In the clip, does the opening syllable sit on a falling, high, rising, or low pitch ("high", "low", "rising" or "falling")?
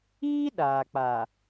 high